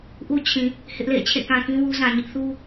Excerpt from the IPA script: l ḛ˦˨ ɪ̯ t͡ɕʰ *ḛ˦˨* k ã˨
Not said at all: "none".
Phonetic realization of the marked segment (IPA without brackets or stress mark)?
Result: ḛ˦˨